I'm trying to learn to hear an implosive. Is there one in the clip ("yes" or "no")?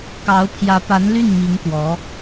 no